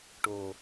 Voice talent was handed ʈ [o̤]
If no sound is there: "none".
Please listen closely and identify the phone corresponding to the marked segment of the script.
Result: o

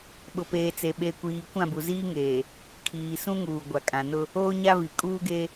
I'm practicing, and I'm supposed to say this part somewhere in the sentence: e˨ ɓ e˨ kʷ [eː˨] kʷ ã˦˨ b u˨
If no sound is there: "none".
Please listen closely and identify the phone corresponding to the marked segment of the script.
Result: iː˨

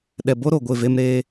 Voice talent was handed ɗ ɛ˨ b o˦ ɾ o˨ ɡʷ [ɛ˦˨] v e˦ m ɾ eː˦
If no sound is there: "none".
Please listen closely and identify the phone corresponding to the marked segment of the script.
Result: ɪ˦˨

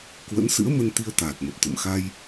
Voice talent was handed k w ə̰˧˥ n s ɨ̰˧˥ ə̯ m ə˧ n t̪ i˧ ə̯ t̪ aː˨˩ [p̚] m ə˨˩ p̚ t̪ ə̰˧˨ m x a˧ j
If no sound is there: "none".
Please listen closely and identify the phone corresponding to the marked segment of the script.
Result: t̚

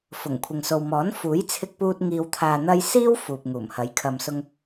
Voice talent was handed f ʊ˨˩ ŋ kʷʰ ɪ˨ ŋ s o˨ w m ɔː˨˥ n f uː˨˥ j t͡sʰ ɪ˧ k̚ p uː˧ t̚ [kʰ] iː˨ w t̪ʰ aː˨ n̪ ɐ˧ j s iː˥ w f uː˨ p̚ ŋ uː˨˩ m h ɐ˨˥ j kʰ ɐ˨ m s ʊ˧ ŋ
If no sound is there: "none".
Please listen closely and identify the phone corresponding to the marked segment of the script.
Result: ŋ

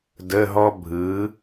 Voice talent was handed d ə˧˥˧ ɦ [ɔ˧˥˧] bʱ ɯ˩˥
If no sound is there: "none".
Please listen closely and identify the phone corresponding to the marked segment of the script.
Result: ɔ˥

